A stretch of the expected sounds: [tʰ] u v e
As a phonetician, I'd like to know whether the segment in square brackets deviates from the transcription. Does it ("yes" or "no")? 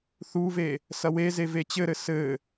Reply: yes